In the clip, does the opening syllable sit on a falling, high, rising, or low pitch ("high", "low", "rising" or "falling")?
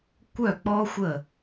falling